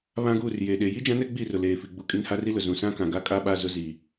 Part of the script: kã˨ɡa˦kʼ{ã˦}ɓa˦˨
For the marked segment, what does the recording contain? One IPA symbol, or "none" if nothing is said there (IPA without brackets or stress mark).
a˦